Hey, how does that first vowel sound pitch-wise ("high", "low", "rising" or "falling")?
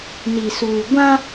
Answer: low